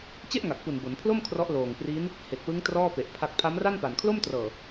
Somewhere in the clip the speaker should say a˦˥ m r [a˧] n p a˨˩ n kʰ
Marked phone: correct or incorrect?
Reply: incorrect: a˥˩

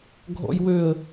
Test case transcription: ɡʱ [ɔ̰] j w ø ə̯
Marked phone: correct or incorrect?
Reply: correct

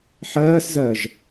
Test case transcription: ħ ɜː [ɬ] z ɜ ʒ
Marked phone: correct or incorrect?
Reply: incorrect: s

